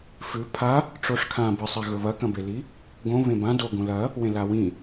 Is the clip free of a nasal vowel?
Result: no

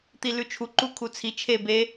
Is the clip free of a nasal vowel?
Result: yes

